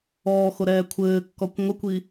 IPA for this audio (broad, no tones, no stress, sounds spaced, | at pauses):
ɔː x o ɾ ɛː kʷʰ ɘː kː ɔ kʷ ŋʷ ɘ kʷ i